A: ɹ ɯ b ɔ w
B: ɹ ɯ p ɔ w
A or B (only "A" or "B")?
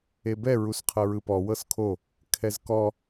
B